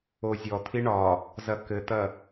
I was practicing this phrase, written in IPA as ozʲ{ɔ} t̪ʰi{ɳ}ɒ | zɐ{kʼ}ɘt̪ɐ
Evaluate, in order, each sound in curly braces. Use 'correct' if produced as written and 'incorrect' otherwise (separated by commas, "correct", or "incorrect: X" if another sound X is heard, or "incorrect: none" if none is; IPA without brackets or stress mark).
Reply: correct, correct, incorrect: k